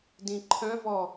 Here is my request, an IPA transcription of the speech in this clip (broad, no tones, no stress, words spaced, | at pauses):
dĩǃʰœ̃vɔ